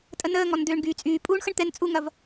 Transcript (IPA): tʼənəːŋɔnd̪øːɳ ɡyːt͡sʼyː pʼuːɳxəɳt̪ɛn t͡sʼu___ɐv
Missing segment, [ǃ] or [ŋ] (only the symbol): ŋ